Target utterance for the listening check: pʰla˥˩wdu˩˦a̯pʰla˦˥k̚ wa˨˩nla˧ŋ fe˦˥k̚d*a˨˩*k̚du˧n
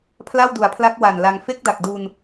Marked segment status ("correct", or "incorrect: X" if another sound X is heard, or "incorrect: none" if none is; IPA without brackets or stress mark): correct